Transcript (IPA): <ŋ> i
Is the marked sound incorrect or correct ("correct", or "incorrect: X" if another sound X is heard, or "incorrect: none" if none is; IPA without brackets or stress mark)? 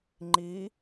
incorrect: ŋ͡ǃ